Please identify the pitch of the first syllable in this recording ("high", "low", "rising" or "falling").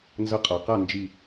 high